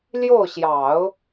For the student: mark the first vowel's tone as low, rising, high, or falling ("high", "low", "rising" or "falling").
falling